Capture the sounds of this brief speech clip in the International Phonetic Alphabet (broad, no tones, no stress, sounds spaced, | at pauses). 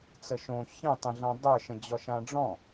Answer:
t͡s ə ʃ õ ç ə̃ tˤ ə̃ ɮ ã dˤ ə˞ ʃ ə̃ d͡ʑ ɔ ʃ ã ɖ͡ʐ ɔ̃